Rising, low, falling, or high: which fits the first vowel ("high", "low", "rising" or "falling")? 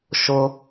high